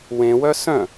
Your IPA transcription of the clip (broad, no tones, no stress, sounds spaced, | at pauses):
w ẽ w œ s œ̃